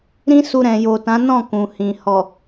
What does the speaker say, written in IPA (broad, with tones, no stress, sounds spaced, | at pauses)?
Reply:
ɾ ĩ˦ s u˧ ɾ ɛ̃˨ j o˨ t ã˨˦ n ɔ̃˦˨ k ũ˨ h ĩ˨ h ɔ˨